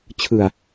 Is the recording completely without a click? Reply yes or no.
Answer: yes